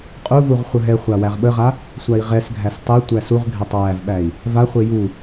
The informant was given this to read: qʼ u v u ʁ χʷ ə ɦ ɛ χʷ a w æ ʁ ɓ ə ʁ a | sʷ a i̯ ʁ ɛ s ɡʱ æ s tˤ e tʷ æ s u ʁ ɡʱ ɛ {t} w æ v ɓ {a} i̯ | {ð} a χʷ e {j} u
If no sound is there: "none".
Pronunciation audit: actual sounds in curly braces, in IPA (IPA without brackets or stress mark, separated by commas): tˤ, æ, v, j